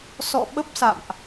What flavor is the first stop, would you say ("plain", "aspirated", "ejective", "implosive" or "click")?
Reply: implosive